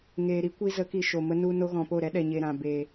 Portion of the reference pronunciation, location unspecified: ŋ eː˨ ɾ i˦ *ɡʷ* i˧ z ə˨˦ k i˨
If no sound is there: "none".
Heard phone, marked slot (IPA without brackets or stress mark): kʷ